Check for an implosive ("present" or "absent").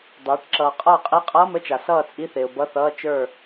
absent